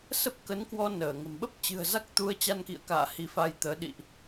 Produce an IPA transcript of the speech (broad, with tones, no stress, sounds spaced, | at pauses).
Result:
s ə˦˥ p̚ k ə˨˦ n k w ɔ˧ n əː˧˩ ŋ ə̤˨˩ m ɓ ə˦˥ p̚ t͡ɕ ɨ̤˨˩ ə̯ z a˦˥ k̚ t̪ u˧ ə̯ t͡ɕ a˧ n k ḭ˧˨ ə̯ k a̰ː˧˨ h i˨˦ f a˧ j t̪ əː˨˦ ɗ ḭ˧˨ ʔ